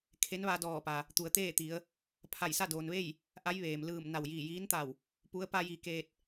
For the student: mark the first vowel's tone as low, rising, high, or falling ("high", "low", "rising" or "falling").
rising